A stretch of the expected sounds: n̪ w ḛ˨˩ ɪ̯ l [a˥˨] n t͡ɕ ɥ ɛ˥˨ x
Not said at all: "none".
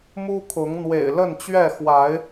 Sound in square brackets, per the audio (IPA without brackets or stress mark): ə˥˨